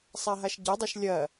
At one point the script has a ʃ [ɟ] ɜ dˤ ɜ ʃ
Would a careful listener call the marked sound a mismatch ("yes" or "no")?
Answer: no